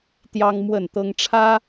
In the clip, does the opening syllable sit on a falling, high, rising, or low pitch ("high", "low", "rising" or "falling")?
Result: high